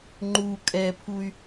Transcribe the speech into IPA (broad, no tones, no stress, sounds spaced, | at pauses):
ŋ͡ǃ u kʼ ɛ pʰ u y̯